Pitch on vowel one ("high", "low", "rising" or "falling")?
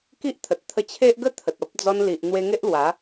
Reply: high